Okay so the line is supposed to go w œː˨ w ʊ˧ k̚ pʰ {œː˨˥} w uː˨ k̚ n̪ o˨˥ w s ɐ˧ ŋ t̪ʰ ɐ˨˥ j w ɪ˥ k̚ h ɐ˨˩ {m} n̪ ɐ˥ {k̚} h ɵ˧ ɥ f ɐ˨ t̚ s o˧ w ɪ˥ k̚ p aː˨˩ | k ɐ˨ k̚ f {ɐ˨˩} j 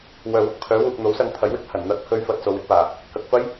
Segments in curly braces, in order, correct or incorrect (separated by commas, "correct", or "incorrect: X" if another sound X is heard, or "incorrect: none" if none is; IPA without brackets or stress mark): correct, incorrect: n, correct, incorrect: ɐ˥